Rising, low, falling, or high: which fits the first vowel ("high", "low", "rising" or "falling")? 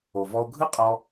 low